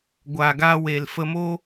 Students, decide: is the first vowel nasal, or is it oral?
oral